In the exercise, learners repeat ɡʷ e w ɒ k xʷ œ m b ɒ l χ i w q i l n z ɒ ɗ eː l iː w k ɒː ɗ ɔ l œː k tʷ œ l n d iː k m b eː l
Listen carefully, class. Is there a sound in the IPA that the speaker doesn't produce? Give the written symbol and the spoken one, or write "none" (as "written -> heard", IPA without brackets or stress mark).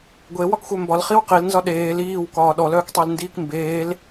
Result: tʷ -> tˤ